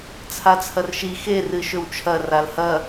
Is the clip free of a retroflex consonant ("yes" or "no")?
yes